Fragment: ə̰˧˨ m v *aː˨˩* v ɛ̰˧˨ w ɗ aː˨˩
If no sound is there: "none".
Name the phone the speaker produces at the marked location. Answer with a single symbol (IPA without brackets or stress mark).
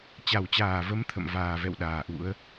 aː˨˩